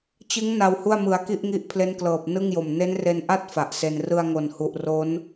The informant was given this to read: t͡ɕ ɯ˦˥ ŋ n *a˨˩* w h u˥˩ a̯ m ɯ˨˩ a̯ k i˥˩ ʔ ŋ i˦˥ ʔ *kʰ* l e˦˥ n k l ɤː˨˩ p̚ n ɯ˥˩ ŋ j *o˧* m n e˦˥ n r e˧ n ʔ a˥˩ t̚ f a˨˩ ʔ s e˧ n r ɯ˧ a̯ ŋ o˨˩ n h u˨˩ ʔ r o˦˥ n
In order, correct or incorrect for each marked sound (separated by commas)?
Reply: incorrect, incorrect, incorrect